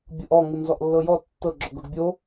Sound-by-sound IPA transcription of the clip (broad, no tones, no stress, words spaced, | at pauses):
bʲɤʔɔ ŋunzɔʔlːɤjɔ tːɤ ɡ͡ǁɔɡɤɡbʲo